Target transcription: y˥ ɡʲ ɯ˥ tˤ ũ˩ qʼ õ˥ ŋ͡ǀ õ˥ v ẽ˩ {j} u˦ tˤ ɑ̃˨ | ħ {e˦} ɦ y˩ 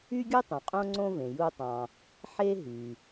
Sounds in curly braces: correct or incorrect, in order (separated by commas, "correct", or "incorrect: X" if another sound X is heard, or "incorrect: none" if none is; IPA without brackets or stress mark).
correct, correct